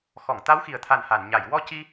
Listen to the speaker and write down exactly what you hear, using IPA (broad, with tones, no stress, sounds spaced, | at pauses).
x ɔ˨˩˨ ŋ t̪ a˧˥ w x i˨˩ ə̯ t̪ʰ a˨˩ n h a˨˩˨ n ɲ a˨˩˨ j w ɔ˧ c i˧